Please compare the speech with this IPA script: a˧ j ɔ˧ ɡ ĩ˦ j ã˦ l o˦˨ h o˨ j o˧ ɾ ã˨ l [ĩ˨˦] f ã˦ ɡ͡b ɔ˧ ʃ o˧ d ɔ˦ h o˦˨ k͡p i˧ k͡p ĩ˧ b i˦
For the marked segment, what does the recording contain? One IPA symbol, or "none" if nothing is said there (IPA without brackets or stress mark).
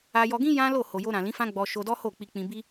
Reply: ĩ˨˦